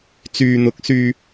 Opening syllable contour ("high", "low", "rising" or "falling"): low